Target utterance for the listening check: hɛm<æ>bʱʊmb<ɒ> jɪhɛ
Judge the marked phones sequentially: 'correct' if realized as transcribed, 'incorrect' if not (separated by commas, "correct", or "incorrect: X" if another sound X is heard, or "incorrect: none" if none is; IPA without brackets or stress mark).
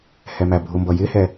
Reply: correct, incorrect: ʌ